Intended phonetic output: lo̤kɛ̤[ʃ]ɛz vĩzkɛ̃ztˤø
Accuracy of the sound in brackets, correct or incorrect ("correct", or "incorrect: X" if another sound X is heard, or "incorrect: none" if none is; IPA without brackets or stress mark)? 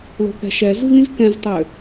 correct